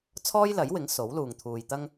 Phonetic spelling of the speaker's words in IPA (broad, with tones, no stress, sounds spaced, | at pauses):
t͡sʰ ɔː˥ j l ɐ˨˥ j w ɪ˨˥ ŋ s o˨˥ w l uː˨ ŋ t̪ʰ uː˨ j t̪ ɐ˥ ŋ